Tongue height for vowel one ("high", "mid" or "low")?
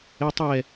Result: mid